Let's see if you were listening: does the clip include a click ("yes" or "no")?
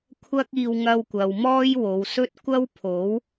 no